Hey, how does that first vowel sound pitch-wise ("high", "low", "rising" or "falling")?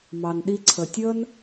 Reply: low